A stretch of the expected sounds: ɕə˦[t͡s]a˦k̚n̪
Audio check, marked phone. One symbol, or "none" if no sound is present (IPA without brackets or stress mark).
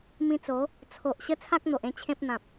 t͡sʰ